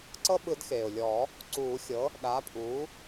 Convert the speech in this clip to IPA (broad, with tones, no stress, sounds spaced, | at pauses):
ǀ ɤ˦ ɓ ɯ˨˩˦ d x eː˩ ʊ̯ lʲ ɔ˨˩˦ | ǀ uː˨˩˦ xʲ ɤ˩˥ | ɗ a˩˥ pʼ u˩˥